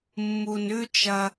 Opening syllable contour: low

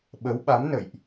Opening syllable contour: rising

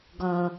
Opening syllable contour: low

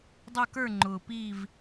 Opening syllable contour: falling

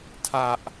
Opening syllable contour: high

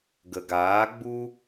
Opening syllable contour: low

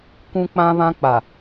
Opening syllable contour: high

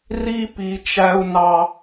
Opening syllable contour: high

